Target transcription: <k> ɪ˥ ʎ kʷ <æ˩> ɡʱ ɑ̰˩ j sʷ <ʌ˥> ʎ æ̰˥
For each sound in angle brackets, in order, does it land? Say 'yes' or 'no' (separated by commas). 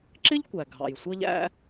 no, yes, yes